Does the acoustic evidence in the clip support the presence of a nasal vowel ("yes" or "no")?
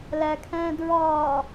yes